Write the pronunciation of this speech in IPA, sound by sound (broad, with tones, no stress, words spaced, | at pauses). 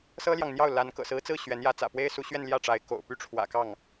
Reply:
sɤ˥ljɑ˨ŋn̪jɑ˥˩ʊ̯ la˧˥n kɤ̰˨˩sɹ̩˧˥t͡sɹ̩˥˩ ɕɥɛ˧˥njä˧˥ t͡sä̰˨˩pwe˥ɪ̯su˧˥ɕɥɛ˥˧n ljä˥˩ʈ͡ʂa˧˥ɪ̯ ko̰˨˩ʊ̯ py˥˩ʈ͡ʂʰwä̰˨˩kɑ˥˩ŋ